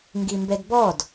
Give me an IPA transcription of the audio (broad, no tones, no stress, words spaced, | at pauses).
ŋɡimbɛdbɔd